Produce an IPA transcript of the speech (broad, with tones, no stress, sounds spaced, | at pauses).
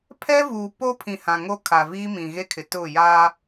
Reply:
pʰ ɛ˦ v uː˨ p o˦ pʰ ĩ˨ h ã˨ ŋ o˦ kʰ a˨ v iː˦ m ĩ˨ ɣ e˦ kʰ ɪ˨ t ʊ˦˨ j aː˦